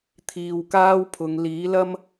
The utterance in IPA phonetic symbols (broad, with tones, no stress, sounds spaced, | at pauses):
t̪ʰ iː˨ w k aː˥ w pʰ ʊ˨˧ ŋ l iː˨˥ l ɐ˥ m